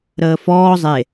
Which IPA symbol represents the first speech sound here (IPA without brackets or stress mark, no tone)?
ɾ